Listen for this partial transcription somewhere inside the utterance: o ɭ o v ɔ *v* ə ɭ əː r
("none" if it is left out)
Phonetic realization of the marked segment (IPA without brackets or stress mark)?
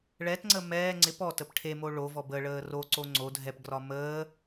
b